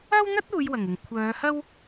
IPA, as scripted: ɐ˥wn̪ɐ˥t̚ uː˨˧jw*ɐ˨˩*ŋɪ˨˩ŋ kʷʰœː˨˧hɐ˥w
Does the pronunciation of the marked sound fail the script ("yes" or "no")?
no